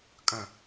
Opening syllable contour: low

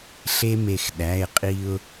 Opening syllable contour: high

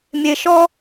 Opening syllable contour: low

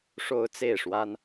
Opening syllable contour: high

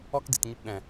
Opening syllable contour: high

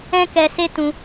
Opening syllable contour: high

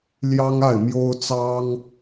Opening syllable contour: high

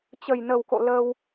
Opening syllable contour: low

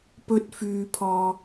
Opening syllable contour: high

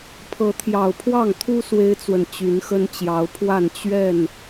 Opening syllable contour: rising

